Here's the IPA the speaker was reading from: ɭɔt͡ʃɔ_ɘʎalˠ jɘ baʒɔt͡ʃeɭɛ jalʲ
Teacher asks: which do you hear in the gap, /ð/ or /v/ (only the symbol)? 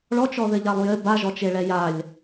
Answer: ð